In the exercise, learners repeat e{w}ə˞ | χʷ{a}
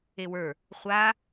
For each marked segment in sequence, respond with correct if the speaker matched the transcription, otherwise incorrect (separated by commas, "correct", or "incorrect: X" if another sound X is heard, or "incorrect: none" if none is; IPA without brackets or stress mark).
correct, correct